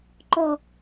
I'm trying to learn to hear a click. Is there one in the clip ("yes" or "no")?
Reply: yes